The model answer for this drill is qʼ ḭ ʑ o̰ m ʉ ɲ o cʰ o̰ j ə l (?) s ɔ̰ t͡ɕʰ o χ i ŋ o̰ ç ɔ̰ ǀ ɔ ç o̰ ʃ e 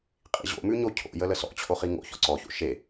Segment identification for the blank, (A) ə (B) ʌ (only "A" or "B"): A